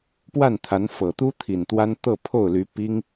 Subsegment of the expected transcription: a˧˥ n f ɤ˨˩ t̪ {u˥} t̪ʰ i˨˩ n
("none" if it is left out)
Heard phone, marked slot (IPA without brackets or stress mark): u˥